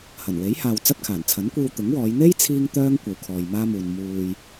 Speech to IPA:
hɐ˨˩nwe˨˥jhaː˨w t͡sɐ˥t̚kʰaː˨˩n t͡sʰɐ˨˥nkʷiː˧w t̪ʊ˨˥ŋwɔː˨˧j n̪e˥jt͡sʰiː˧ŋ t̪œː˥ŋkʷɐ˨wkʰɔː˨j maː˥muː˨n muː˨j

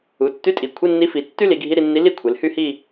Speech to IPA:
u˩˧tːy˧˥˧tʼi˩˧ kʷʰi˧˥˧nːi˧˥fi˩˧ tːy˥li˩˧ɡʱi˧˥˧ɾi˥˧ nːi˧˥li˥˧ kʷʰe˩˧lhy˥˧hi˥˧

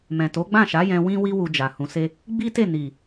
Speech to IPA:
mɛ̃˨to˨˦ɡ͡bã˦˨ ʃa˨˦jɛ̃˧ wĩ˦wi˦ wu˧d͡ʒa˨hũ˧se˦ | ɡ͡bi˦te˦˨ ni˨

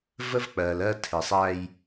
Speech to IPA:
və˦vk͡pɜː˨l ɜ˦ tʰɪ˨sˤæ˦j

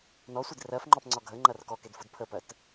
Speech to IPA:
nɔsʷid rɜfŋ͡ǃɔpŋ͡ǀɒ ɡʱəŋ͡ǃɐr kɔkedfud pʰəpɜt

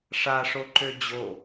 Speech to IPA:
ʂaʂoǃø d͡ʑo

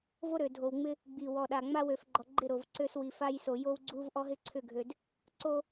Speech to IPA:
vo˦ɾø˨dʱo˨wŋ͡mɪ˦ | ɡ͡bi˨ wɔ˨ɗa˨ ŋ͡ma˦wø˨fɡ͡ǃɔ˨ɡ͡ǃɪ˦˨ ɾo˨vǀø˦s wi˨fa˦j so˨jo˦wɡ͡ǀu˦v ʔɔ˦ɦɪ˦ǀʰʏ˦˨ɡʱø˨d | ǀo˦

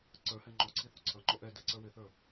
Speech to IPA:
ǀə˞hɛ ŋ͡ǃɔǀʰi θuǀʰʌŋ͡ǃɔ ʔɛ dɛǀə˞ wɪθə˞

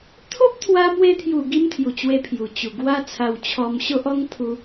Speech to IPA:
t̪ʰo˦p̚t̪ʰwa˧mwe˧t̪ʰju˨˩ ɡi˦mt̪ʰju˨˩t͡ɕwe˧ pʰju˨˩t͡ɕu˨˩ ɡwa˦t͡sʰa˧wt͡ɕʰɔ˧m ɕo˦ʔɔ˦ŋ pʰu˧

